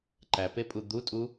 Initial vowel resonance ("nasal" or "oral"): oral